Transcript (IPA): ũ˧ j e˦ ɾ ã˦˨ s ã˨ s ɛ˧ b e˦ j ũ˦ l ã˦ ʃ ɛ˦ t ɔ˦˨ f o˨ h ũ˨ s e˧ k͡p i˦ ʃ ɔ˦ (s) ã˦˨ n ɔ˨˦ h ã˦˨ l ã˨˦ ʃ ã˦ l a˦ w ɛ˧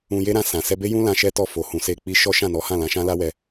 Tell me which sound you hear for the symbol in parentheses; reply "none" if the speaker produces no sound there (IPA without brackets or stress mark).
ʃ